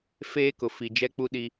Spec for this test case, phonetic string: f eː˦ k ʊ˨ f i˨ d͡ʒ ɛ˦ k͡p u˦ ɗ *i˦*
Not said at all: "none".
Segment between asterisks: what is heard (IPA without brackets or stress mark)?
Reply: i˦